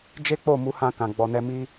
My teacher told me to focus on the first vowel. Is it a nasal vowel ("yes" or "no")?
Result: no